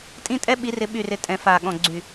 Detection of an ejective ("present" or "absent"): present